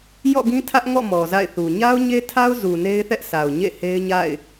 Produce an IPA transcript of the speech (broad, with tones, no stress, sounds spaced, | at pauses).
j ɔ̰˦˨ ɡ ĩ˦ tʰ ä˦ ʔ ŋ ɔ̰˦˨ m ɔ˨ z a̰˦˨ ɪ̯ θ u˨ ɲ a˦ ʊ̯ ɲ e˦ tʰ a˦ ʊ̯ z u˨ n e˦ ɪ̯ θ ɛ˦ ʔ sʰ a˨ ʊ̯ ɲ ḛ˦˨ h e˦ ɪ̯ ɲ a̰˦˨ ɪ̯